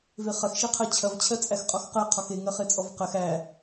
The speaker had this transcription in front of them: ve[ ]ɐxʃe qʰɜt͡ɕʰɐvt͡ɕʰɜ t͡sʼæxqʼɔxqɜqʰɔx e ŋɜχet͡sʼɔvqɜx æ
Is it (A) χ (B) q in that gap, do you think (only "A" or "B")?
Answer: A